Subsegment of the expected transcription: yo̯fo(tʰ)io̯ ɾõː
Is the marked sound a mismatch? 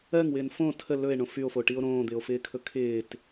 yes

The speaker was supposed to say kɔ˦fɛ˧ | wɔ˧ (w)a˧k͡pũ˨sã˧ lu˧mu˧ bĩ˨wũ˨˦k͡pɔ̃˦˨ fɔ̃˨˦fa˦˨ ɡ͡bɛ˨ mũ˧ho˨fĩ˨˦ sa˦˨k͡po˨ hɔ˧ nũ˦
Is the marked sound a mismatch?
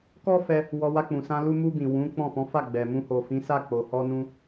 no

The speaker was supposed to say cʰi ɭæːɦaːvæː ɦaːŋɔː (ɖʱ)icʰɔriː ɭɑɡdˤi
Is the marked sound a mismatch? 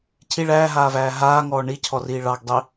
yes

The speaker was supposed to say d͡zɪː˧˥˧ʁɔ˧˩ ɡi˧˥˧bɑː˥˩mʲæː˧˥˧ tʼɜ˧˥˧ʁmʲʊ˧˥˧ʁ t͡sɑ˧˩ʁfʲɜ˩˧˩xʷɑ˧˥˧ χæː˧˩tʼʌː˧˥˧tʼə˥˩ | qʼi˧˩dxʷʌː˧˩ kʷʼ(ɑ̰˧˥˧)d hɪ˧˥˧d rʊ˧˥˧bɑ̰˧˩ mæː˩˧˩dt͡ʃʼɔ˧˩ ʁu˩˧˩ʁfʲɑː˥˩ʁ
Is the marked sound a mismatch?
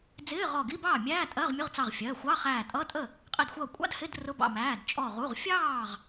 no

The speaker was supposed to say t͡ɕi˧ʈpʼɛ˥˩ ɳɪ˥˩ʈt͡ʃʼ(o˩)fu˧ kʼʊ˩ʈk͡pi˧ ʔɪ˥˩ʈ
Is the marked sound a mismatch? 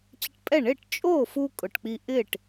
yes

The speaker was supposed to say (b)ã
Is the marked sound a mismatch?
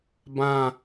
no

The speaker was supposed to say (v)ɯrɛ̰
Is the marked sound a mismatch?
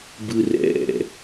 yes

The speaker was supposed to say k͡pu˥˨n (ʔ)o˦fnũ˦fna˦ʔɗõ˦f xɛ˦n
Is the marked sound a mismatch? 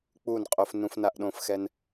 yes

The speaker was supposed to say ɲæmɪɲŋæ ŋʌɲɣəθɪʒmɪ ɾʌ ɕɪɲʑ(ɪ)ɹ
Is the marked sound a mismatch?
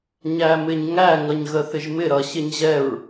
yes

